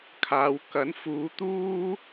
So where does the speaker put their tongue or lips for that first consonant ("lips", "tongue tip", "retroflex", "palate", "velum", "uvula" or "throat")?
velum